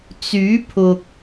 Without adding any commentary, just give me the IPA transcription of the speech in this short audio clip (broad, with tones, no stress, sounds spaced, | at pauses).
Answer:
t͡s yː˨˥ pʰ ʊ˨ k̚